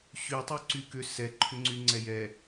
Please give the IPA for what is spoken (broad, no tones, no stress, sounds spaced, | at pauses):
ɕ y tˤ y ǀ y k ʏ s ɛ ǃʰ ʏ ŋ͡ǀ y ŋ͡ǀ ɛ j ɛ